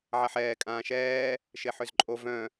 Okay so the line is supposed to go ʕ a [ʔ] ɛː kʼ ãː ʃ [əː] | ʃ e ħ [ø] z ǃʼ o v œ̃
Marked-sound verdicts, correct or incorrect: incorrect: ħ, incorrect: ɛː, correct

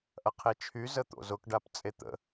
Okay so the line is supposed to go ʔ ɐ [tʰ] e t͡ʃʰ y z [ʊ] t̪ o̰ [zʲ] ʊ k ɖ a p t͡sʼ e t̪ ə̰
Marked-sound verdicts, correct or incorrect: incorrect: qʰ, incorrect: ə, incorrect: z

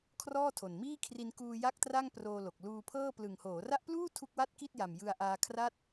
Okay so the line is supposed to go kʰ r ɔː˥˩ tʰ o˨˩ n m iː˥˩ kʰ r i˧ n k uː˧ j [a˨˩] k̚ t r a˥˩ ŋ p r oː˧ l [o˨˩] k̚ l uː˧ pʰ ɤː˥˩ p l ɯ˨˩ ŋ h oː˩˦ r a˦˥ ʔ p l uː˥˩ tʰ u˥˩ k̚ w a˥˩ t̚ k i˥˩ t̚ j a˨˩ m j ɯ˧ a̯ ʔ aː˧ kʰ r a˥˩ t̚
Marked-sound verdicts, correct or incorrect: incorrect: a˥˩, correct

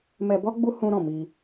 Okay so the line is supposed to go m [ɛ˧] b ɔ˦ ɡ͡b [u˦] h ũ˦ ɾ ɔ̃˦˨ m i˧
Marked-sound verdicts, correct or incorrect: correct, correct

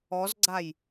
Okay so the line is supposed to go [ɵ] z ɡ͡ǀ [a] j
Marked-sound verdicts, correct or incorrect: incorrect: ɔ, correct

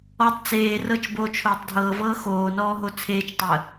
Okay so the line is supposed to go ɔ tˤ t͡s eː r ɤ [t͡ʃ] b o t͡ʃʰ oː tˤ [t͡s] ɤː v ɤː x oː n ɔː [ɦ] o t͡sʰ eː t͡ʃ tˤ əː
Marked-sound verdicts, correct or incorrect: correct, incorrect: dʱ, correct

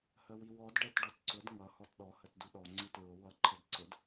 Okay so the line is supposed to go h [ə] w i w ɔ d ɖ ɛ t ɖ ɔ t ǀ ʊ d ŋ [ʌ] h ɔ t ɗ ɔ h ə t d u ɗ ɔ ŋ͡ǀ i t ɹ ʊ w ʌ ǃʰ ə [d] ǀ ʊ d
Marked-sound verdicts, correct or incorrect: correct, correct, correct

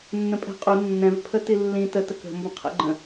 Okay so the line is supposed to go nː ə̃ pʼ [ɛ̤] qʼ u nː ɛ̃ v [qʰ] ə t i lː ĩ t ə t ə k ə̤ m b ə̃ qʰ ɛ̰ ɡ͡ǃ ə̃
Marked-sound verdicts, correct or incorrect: correct, incorrect: pʰ

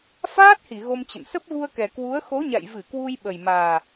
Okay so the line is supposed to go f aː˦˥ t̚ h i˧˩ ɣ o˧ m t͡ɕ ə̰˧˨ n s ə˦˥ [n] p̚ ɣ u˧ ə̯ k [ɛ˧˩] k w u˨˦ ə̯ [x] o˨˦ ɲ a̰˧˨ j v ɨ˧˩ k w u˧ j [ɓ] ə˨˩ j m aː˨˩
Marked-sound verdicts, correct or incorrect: incorrect: none, incorrect: ɛ˨˩, correct, correct

